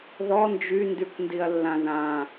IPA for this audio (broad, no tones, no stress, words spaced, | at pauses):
ðɔ nd͡ʒyndykʷ ndiɐ̯lːãðã